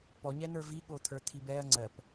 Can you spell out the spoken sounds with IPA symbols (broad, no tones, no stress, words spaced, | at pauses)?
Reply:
pɔɲɛn̪ə˞ viɠo t̪ʰə˞t̪ʰibɛɐ̯ ŋ͡ǀɜp